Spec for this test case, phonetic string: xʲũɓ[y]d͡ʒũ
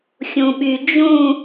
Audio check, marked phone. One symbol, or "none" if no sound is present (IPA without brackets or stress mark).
y